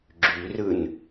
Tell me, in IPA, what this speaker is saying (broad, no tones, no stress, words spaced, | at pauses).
ɡ͡ǁyrɯn